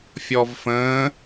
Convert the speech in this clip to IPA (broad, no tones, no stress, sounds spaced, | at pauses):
fʲ ɔ v f ə̃ː